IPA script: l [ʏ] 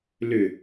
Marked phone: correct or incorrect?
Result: correct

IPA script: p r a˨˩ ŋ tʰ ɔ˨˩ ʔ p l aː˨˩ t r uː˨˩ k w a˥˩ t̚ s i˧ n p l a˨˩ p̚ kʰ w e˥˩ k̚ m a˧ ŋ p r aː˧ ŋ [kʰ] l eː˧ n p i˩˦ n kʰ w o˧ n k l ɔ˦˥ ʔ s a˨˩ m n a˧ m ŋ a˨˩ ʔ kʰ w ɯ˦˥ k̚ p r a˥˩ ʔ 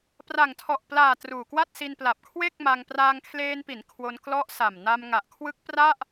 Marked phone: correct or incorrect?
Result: correct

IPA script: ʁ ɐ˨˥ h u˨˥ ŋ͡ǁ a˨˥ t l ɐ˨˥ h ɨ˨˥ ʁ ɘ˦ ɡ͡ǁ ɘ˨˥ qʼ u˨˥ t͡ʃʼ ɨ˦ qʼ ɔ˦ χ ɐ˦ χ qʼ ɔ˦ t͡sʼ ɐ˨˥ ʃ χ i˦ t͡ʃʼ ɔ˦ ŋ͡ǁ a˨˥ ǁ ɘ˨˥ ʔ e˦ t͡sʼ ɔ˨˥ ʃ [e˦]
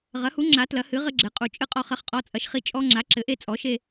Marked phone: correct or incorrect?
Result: correct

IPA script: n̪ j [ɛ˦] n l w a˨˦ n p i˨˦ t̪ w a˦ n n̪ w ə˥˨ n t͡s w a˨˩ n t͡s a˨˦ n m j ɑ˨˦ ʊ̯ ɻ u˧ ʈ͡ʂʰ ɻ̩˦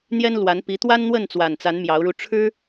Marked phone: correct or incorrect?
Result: correct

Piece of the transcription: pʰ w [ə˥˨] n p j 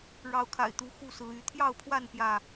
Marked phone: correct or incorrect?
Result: incorrect: a˥˨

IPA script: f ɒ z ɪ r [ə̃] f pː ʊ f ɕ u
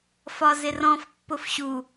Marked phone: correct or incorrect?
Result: incorrect: ɔ̃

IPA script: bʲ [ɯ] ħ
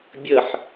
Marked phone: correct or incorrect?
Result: incorrect: ə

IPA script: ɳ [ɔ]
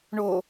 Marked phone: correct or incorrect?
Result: incorrect: o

